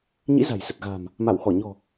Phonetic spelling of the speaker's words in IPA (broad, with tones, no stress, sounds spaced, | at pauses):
ɲ ḭ˧˥ z a̤˨˩ j s ə˨˩ t̚ ɣ a̤ː˨˩ m | m a˧˩ w x ɔ˧˩ ɲ ɔ̤˨˩